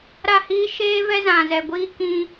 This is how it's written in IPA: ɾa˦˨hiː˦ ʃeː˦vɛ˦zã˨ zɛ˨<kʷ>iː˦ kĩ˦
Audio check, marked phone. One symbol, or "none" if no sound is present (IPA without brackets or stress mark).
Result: ɡʷ